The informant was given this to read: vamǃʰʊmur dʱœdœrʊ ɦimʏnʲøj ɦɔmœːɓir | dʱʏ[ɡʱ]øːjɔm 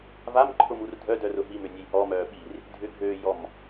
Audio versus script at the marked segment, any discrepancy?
no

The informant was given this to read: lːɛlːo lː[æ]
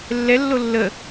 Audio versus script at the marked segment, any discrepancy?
yes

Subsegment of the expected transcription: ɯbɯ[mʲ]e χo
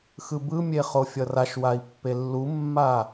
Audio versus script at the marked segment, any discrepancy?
no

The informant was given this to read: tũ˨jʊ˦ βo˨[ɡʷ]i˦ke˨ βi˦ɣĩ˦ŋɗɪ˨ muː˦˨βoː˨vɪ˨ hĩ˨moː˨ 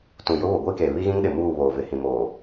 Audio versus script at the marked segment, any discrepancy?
no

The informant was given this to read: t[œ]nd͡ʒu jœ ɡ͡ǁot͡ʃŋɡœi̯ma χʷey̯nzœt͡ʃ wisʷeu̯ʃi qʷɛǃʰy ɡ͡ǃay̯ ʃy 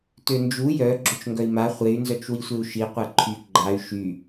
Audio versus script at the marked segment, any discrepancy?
yes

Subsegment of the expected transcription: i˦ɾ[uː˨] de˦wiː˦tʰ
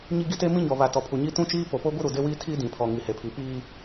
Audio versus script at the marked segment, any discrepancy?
yes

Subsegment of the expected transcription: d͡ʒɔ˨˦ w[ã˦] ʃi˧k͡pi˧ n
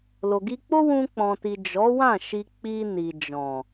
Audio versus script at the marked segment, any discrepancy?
yes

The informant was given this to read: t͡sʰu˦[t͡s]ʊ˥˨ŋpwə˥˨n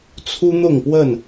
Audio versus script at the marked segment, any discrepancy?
yes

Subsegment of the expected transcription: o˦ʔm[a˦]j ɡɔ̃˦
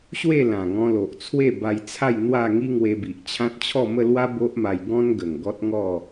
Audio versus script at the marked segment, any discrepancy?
yes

